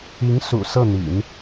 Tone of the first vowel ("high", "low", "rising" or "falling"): rising